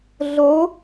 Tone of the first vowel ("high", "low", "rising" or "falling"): rising